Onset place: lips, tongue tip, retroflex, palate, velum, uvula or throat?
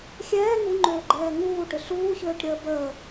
velum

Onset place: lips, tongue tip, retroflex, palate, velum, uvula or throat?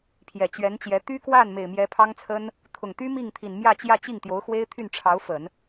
lips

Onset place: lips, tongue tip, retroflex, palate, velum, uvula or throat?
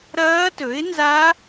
tongue tip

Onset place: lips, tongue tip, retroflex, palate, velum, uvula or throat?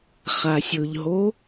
uvula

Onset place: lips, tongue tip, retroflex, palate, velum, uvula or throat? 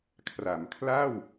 velum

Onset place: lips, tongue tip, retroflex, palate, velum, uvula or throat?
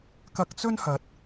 velum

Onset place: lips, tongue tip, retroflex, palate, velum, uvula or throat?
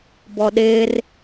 lips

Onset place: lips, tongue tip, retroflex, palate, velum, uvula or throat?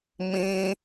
lips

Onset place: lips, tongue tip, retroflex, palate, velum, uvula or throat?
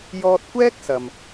palate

